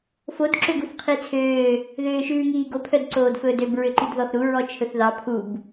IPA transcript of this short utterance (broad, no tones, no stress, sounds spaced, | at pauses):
f o d ǁ ø ɡ u θ qʰ i t͡sʰ øː | ð øː ʃ ʉː ŋ iː ɡ o pʰ œ d ǀ oː d f ɵː d ø b ɹ ø ǃ i d ð ɔ θ ɾ u ɹ ɔ t͡ʃʰ ɵ θ ð ɑ pʰ u b